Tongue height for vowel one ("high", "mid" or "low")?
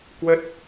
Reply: mid